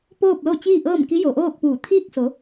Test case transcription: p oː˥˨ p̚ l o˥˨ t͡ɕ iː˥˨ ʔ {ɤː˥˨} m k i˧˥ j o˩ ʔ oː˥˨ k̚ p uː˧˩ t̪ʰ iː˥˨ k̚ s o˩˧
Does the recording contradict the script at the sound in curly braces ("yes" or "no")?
no